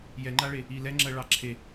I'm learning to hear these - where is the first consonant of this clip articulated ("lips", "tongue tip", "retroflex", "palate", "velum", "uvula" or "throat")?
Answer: palate